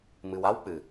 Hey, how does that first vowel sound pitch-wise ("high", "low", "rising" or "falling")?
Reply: low